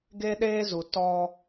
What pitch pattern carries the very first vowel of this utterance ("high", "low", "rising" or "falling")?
high